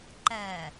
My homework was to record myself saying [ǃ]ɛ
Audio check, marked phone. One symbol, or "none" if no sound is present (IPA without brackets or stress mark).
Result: ǃ